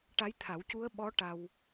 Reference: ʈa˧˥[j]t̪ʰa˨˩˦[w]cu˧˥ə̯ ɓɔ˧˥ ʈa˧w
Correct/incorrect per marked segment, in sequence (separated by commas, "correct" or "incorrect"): correct, correct